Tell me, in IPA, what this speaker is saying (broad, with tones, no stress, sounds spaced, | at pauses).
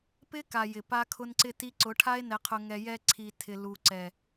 p ɪ˦ k a˨ j ɪ˨ p a˦ kʰ ʊ˦ n ǀ ɪ˦ t i˧ ǀ ʊ˨˦ ʈʰ a˦ e̯ n ɛ˧ qʰ ʊ˧ ŋ ɛ˧ j ɛ˧ ǀʰ i˨ tʰ ɪ˨ l u˨ ǀ ɛ˨